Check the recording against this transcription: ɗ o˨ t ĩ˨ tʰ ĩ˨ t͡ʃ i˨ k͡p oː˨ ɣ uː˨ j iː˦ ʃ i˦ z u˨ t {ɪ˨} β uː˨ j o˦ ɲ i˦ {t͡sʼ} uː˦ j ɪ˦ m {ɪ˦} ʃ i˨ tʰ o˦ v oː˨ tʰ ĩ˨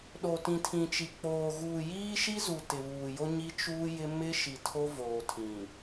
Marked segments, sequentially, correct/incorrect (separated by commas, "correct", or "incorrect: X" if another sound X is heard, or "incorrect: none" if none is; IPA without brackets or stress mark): correct, incorrect: t͡ʃ, correct